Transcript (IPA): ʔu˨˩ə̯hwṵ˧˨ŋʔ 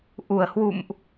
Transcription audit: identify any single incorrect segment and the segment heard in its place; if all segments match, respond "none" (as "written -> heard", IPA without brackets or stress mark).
ŋ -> m